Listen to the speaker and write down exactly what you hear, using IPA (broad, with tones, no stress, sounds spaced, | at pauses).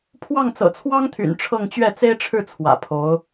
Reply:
pʰ w ɑ˥˩ ŋ t͡s ɤ̰˨˩ t͡sʰ w ɑ˥ ŋ t̪ʰ y̰˨˩ n ʈ͡ʂʰ ɤ˥˧ ŋ t͡ɕ ɥ ɛ˥˩ t͡s e˥ ɪ̯ ʈ͡ʂʰ ɻ̩˥˩ t͡sʰ w ä̰˨˩ pʰ o˧˥ ʊ̯